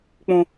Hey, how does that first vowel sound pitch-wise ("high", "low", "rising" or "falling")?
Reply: high